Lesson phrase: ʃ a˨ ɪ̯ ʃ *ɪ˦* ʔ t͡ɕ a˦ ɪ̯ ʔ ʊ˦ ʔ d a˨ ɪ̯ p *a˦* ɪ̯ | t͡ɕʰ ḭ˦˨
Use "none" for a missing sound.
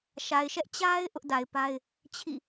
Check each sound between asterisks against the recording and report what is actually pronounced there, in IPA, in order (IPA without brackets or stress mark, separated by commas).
ɛ˦, a˦